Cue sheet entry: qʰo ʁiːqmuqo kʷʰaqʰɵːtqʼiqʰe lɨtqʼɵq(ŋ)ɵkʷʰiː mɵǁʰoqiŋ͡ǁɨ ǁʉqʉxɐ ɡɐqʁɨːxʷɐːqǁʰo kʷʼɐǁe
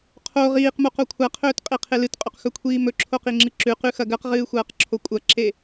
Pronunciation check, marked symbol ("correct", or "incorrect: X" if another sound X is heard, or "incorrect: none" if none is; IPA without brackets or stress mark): incorrect: x